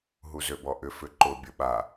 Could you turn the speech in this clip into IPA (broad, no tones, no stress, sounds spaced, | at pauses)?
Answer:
ɦ u z ø b ɔ ʔ ʏ f ʏ ǃ ʊ bʲ ʊ ɓ a